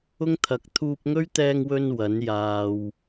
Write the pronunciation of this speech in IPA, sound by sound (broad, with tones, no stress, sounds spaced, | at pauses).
ʊ˥ ŋ t̪ʰ ɐ˨˥ k̚ t̪ʰ uː˧ p̚ ŋ ɵ˥ ɥ t̪ ɛː˧ ŋ w ɵ˧ n w ɐ˨˥ n j aː˨ w